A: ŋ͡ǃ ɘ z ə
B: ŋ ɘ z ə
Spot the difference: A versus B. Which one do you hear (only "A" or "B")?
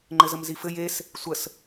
A